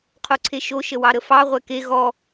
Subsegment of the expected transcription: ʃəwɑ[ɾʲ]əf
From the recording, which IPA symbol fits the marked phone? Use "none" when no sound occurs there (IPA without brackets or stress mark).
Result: ɾ